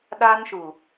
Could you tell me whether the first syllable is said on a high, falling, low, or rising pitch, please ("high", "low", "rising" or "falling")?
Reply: high